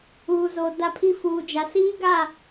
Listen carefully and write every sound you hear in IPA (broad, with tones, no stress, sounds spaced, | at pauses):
uː˨ z o˨ d a˦ pʰ i˦ f uː˨ d͡ʒ a˨ s iː˦ ɡ a˦˨